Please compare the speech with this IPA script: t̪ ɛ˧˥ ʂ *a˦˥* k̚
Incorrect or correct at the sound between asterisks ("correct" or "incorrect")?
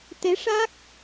correct